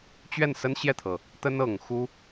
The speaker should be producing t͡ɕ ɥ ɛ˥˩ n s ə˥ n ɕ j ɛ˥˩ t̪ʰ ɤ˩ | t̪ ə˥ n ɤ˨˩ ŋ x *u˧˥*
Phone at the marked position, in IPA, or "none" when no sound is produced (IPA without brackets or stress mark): u˥